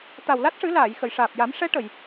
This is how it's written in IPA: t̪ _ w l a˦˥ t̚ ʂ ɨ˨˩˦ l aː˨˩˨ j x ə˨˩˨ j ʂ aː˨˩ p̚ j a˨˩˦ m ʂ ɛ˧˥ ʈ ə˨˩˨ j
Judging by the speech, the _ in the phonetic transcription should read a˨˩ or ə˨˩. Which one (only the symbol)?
a˨˩